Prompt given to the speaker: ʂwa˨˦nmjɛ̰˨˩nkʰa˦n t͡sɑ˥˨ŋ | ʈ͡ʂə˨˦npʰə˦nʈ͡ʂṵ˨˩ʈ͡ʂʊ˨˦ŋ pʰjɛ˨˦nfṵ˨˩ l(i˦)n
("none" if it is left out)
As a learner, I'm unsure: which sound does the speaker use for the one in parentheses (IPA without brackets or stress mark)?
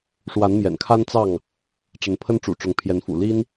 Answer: i˦